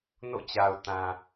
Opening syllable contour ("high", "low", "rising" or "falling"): falling